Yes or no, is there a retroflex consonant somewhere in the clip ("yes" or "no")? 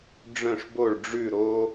yes